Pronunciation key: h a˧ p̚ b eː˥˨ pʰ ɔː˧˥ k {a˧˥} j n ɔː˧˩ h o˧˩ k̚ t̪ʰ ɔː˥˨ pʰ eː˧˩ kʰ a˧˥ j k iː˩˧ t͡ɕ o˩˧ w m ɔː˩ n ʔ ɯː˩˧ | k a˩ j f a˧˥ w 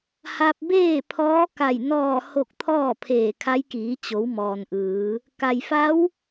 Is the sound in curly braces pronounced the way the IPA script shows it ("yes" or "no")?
no